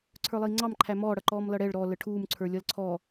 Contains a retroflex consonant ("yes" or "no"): yes